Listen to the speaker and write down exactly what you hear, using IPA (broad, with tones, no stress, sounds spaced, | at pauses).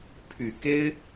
pʰ y˨˩ k e˦ ɪ̯